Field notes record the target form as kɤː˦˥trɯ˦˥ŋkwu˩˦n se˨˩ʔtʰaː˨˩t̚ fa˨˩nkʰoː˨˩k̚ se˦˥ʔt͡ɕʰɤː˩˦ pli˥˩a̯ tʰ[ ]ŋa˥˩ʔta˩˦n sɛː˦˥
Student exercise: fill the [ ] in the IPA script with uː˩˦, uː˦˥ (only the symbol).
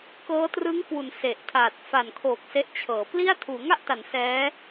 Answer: uː˩˦